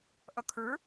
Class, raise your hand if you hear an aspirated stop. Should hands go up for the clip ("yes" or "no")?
yes